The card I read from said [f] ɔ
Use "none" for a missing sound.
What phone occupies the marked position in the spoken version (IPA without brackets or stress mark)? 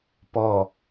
p